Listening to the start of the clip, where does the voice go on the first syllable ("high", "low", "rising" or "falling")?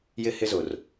high